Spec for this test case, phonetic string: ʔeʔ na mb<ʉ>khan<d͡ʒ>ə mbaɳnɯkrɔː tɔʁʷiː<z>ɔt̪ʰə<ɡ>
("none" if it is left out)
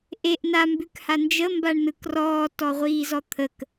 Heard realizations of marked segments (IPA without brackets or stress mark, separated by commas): ʉ, d͡ʒ, z, k